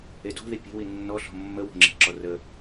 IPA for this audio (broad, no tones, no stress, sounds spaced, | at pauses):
e d o̤ ð i pʲ e̤ w i nː ɔ ɬ ɔ̤ mː ə w o̤ ŋ͡ǁ e̤ ǁ ɔ r ə